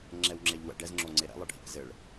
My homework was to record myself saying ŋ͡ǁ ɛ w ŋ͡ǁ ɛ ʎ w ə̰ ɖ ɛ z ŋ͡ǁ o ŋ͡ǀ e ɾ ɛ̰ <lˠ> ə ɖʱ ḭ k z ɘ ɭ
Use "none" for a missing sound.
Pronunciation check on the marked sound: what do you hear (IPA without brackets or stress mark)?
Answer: lˠ